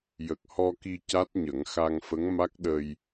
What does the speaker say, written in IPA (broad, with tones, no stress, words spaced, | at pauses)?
jə˨˩k̚hɔ˧ki˧ ca˦˥t̚ɲə˨˩˦ŋ xa˧ŋfə˧˥ŋma˦˥k̚ɗə˧j